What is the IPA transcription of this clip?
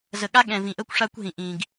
z ə˨ ɠ a˦ ɠ ɛ̃˨ v ĩ˨ ʔ ə˦ kʷ ʂ a˦ kʷ ɦ ĩ˨ ʔ ĩ˨ ɡ

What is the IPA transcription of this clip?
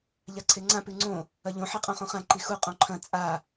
ʎ a ǀʰ e ŋ͡ǀ ã p ʉ ŋ͡ǀ õ | ɐ ʎ õ ħ e qʼ õ χ õ χ ã ǃ i x u qʼ õ ǃʰ ɐ̃ t͡sʼ a

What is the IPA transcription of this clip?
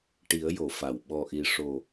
ʈ i˨˩˦ ə̯ j o˨˩˨ f a˨˩˨ w ɓ ɔ˨˩ ʔ i˨˩ ʂ o˨˩

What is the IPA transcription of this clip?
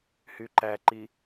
h y ǃ æ ǃ i

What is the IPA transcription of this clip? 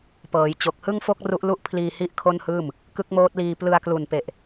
p ɤː˩˦ j t͡ɕ o˨˩ k̚ h ɯ˥˩ ŋ f o˥˩ k̚ r u˦˥ ʔ l u˥˩ ʔ pʰ l iː˧ h i˥˩ ʔ kʰ o˥˩ n h ɯː˥˩ m | k ɯ˦˥ k̚ m oː˦˥ t̚ l iː˧ p l ɯ˧ a̯ k l u˨˩ n p e˨˩ ʔ

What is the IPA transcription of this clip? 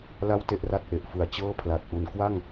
l a˥˩ w t e˥˩ ʔ r a˥˩ t̚ ʔ e˨˩ ʔ f ɯ˨˩ a̯ t͡ɕ ɤː˥˩ pʰ l a˨˩ t̚ ʔ u˩˦ n k w a˥˩ ŋ

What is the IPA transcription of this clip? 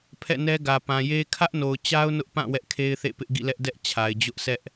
pʰ ɛ̰˦˨ n ɛ˦ ɡ ä˨ p ã˨ j e˦ kʰ ä˦ ʔ n o˨ ʊ̯ t͡ɕ a˦ ʊ̯ n ʊ˦ ʔ p ã˦˨ w ɛ˦ ʔ kʰ e˦ ɪ̯ θ ḛ˦˨ p ɪ˦ ʔ ɡ ḭ˦˨ l ɛ˦ ʔ d ɛ˦ ʔ t͡ɕʰ a˨ ɪ̯ d͡ʑ ʊ˦ ʔ sʰ ɛ˦ ʔ

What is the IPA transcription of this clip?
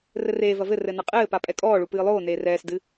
r ɘ r eː v ɐ v ɘ r ɘ n ɐ qʼ ɘː p a pʼ ɛ kʼ ɔː ɭ u p ɨː lˠ oː n eː r ɛː s d ɨ

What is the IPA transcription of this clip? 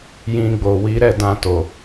j ĩ˧ ɡ͡b o˨ w i˨˦ ɾ ɛ˦˨ d ã˧ t o˨

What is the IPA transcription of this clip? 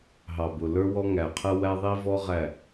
ɦ ɑ˨ b ʊ˨ l ə˞˦ w ɔ˦ ŋ æ˨ qʰ ə˦ w æ˦ ðˤ i˦ v ɔ˦ ʁ æ˦˨

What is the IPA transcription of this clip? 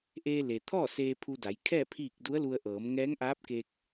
ʔ eː˧ l e˩ t̪ʰ ɔː˥˨ s eː˧ pʰ u˧ d a˩˧ j kʰ ɛː˥˨ pʰ iː˥˨ k̚ d u˧˥ ə̯ l u˧ ə̯ ʔ ɤː˩˧ m ŋ ɛː˧˥ ŋ ʔ aː˧˥ p̚ k e˧ k̚

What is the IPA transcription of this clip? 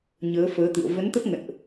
ɲ əː˨˦ f əː˨˦ t̪ ɨ̰˧˨ ə̯ v ə˨˦ n t̪ ə˦˥ p̚ ŋ ə̰˧˨ n ʔ

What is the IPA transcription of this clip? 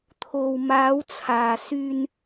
t̪ʰ o˨ w m aː˨˧ w t͡sʰ aː˨ s yː˧ n

